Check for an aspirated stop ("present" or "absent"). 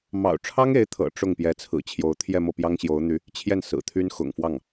present